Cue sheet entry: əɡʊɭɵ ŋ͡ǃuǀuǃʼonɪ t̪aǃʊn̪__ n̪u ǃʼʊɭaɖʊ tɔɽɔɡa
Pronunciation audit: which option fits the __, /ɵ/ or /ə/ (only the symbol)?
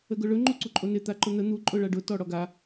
ə